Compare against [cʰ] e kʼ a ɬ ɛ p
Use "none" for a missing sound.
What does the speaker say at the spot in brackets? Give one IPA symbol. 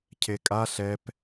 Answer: cʰ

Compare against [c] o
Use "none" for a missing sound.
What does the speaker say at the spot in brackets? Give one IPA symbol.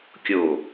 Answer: kʲ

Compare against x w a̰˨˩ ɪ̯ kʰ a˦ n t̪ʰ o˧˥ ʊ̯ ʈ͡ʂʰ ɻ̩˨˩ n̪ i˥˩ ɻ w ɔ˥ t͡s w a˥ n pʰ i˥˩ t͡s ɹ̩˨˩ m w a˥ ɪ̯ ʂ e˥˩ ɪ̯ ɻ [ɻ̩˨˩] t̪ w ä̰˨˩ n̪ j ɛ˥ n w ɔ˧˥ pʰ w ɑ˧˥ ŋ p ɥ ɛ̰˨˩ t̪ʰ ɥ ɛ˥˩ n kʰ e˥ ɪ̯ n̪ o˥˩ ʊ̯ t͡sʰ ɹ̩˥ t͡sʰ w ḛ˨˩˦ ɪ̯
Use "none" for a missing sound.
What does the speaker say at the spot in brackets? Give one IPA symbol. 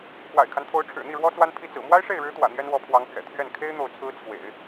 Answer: ɻ̩˧˥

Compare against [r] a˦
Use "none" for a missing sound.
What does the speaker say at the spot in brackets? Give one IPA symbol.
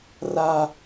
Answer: r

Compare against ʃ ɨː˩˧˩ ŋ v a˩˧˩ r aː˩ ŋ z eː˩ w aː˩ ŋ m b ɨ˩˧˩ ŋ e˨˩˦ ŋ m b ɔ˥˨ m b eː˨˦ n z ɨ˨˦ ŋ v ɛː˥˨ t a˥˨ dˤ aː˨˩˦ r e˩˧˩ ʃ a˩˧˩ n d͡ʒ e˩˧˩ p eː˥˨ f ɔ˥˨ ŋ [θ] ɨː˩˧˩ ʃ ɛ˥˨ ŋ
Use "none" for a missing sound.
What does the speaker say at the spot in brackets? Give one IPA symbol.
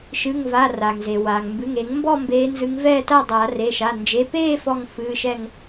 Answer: f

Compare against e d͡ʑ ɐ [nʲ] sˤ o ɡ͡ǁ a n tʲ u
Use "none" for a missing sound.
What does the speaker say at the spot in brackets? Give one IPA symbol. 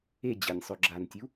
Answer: nʲ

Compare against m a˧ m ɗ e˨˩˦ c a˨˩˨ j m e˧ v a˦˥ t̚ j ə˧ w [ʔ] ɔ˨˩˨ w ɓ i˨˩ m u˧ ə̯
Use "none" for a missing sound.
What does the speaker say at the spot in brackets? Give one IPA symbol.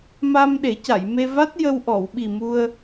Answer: ʔ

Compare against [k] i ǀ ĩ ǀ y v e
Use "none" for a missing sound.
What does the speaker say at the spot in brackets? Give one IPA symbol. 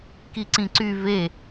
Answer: k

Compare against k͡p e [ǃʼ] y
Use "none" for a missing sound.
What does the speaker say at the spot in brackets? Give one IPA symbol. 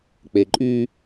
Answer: ǃʼ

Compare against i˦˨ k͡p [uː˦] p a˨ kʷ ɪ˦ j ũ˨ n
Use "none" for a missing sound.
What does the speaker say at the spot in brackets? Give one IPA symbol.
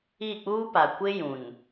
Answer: uː˦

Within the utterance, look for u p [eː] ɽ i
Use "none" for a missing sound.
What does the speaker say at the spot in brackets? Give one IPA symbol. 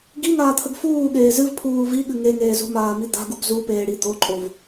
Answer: eː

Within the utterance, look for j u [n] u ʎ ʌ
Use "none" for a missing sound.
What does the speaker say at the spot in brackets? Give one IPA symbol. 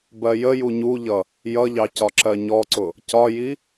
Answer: ɲ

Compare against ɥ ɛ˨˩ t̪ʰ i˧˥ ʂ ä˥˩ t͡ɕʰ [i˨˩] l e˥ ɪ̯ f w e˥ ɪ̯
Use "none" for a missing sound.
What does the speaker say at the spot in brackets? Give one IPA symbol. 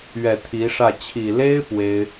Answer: i˨˩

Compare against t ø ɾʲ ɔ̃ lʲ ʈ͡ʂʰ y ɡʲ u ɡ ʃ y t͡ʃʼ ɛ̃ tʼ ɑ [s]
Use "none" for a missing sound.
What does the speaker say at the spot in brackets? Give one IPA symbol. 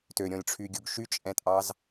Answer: z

